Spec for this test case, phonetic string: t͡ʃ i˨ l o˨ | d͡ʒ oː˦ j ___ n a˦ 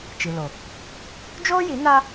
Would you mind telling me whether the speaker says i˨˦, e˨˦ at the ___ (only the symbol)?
i˨˦